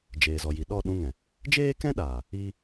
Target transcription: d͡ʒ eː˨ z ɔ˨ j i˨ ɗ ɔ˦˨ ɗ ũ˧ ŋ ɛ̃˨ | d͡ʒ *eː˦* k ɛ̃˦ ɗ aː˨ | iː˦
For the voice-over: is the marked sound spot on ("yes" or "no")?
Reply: yes